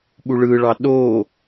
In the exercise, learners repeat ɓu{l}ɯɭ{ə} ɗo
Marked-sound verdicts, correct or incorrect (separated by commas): incorrect, incorrect